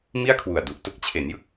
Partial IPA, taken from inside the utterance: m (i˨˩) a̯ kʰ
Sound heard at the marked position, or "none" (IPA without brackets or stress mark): i˥˩